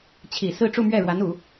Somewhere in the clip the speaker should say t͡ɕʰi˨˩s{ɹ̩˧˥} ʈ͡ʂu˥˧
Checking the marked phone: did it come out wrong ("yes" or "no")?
yes